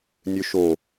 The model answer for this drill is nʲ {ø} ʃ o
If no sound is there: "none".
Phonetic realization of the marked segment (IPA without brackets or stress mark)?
ø